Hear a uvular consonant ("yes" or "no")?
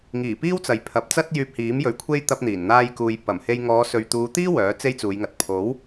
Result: no